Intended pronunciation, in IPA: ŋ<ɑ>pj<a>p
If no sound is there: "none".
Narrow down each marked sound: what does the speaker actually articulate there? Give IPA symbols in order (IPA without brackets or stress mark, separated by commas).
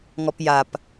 ɔ, a